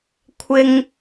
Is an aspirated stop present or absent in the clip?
present